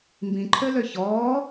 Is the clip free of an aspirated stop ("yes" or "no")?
no